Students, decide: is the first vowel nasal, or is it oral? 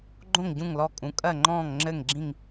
nasal